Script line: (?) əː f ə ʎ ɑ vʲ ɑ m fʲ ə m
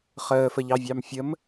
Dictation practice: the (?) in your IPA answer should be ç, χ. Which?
χ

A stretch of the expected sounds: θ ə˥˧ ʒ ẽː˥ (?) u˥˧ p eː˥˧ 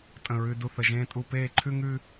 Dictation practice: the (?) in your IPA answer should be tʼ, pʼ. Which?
tʼ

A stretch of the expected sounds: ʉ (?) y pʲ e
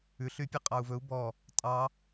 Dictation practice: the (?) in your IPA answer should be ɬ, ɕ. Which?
ɬ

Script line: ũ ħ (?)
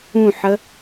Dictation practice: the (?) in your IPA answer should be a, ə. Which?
ə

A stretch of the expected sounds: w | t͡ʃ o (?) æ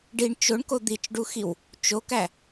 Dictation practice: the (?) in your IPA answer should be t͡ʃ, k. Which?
k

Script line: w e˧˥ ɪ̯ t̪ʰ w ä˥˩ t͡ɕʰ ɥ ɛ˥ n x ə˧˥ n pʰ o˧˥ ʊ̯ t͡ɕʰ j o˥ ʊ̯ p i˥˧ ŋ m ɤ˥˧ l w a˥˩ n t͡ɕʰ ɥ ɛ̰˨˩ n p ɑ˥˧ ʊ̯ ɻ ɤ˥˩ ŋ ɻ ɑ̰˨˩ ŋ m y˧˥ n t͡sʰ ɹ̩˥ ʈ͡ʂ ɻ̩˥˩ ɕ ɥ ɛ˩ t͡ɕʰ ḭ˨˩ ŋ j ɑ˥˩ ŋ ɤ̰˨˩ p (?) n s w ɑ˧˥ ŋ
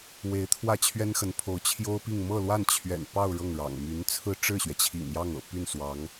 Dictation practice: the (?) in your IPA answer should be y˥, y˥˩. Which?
y˥˩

